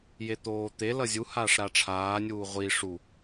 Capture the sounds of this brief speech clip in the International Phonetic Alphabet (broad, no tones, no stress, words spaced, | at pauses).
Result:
jet̪oːt̪e lʌzʲu haːʂɾaʈ͡ʂʰaː nʲuːʁʷi ʂu